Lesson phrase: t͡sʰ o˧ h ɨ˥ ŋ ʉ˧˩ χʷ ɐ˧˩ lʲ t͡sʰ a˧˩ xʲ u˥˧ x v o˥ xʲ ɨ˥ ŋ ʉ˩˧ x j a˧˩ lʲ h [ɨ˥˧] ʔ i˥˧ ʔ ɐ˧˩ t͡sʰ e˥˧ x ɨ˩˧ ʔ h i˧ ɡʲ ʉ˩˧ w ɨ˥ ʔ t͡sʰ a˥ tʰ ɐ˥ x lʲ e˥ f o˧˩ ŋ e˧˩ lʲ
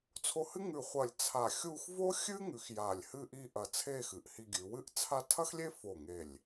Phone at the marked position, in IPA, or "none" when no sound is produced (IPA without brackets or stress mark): ɨ˥˧